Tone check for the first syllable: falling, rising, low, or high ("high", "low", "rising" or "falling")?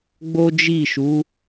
high